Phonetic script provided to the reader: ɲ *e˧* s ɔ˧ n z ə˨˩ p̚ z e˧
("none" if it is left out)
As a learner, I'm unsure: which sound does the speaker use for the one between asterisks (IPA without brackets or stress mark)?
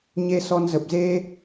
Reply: e˧